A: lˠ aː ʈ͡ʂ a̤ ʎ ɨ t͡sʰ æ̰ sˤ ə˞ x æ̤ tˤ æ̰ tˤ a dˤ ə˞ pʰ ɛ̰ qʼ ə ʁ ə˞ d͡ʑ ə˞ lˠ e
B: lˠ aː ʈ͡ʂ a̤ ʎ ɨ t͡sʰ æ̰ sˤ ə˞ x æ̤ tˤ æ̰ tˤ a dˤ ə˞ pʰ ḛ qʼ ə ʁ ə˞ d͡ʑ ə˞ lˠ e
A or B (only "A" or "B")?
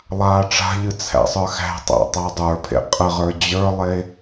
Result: B